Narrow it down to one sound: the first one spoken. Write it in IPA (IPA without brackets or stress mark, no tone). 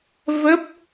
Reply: v